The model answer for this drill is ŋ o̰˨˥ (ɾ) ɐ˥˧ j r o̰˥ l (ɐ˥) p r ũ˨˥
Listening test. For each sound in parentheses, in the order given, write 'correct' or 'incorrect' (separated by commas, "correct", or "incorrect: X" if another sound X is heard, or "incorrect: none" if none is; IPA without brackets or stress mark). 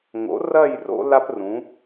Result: incorrect: r, incorrect: a˥